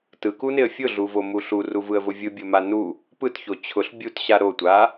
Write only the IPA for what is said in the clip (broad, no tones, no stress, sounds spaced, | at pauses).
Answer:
t ɯ k u n ɪ ə̯ fʲ ʊ ɮ u v o m u ɬ u r u v ɯ ə̯ v ʊ vʲ ɯ bʲ o m a n u | p ɯ t ç o t͡ɕʰ ʊ ɬ bʲ u t ɕ a ɾ o tʷ a